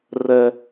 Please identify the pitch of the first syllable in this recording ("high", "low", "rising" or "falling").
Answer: high